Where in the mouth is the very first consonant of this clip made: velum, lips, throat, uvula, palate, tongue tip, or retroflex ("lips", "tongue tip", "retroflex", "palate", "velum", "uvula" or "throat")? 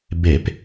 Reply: lips